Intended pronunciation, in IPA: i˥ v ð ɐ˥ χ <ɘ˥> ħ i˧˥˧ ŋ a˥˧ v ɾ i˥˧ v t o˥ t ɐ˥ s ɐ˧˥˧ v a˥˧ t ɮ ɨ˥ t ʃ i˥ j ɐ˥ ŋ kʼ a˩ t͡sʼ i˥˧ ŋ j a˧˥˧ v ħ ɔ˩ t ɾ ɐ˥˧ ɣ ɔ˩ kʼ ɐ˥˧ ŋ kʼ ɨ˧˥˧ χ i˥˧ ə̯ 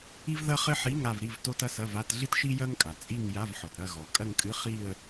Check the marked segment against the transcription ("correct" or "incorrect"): correct